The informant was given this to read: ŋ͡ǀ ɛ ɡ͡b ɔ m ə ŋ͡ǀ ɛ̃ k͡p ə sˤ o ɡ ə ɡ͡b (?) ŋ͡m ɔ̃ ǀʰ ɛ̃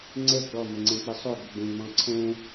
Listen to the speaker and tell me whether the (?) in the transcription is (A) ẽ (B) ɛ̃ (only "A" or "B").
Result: A